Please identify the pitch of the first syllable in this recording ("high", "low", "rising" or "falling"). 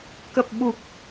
low